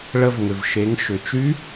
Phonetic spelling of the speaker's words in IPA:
ɭ ə˧ v ŋ ʏ˩ v ʃ e˩˧ ŋ ʃ ʏ˩ t͡ʃ y˧˥

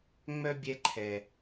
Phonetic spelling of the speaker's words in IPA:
ŋ͡m œ˦ bʲ ɛ˧ ǃʰ ɛ˨

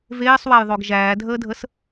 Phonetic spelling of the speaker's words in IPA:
v eː sˤ w æ j ðˤ o ɡ ʒ æː dʱ əː dʱ ə s

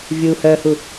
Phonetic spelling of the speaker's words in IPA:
vʲ u h œ h u

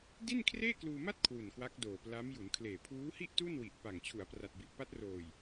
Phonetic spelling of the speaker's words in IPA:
d i˥˩ n kʰ r eː˥˩ k l uː˧ m a˥˩ t̚ kʰ w u˨˩ n k w a˦˥ k̚ d oː˨˩ p l a˦˥ m j u˩˦ n kʰ l eː˨˩ pʰ uː˦˥ h i˥˩ ʔ t u˥˩ n w i˨˩ ʔ p a˨˩ ŋ t͡ɕʰ u˩˦ a̯ p r a˨˩ t̚ b i˨˩ ʔ p a˦˥ t̚ r oː˨˩ j

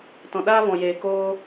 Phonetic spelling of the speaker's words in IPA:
t ɔ̃˨ ɗ aː˦ v ɔ̃˨ j eː˨ k oː˦

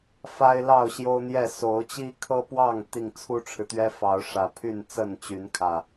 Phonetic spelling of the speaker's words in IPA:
f a˦ ɪ̯ l ɑ˥˨ ʊ̯ ɕ j o˦ ʊ̯ n̪ j ɛ˥˨ s o˨˦ ʊ̯ t͡ɕ i˦ kʰ ɤ˦ p w ɑ˥˨ ŋ t̪ i˥˨ ŋ t͡sʰ u˦ ʈ͡ʂʰ ɻ̩˨ t̪ ɥ ɛ˦ f ɑ˨˦ ʊ̯ ʂ ä˨˩ pʰ y˥˨ n t͡s ə˥˨ n t͡ɕ y˨˦ n kʰ ä˨˩

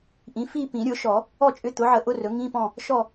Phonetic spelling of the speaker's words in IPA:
ʔ ĩ˩˥ f i˥˨ p ĩ˨˩˦ ɾʲ ʊ˨˩˦ ʃ ɔ˨˩˦ | ɔ˥˨ t͡ʃʼ ʏ˧˥˧ t̪ ʊ˩˥ ʕ ə˨˩˦ ʔ ʊ˧˥˧ r ɵ˩˥ ŋ ĩ˧˥˧ p ɔ̃˥˨ | ʃ ɔ˥˨

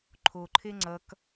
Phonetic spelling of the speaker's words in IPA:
ǃʰ o ǃʰ e ŋ͡ǀ ʌ k

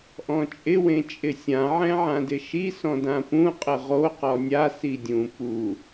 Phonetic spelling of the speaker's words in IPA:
ʔ ɔ̃ t͡ʃʼ ɪ w ẽ t͡ʃʼ ɪ sʲ ã ʕ ɛ̃ ʕ ã d ɪ ʃ i s ɔ̃ d ã p ũ qʼ ɪ ʁ o q ɔ nʲ a s i dʲ ũ p u

